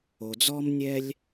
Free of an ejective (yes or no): yes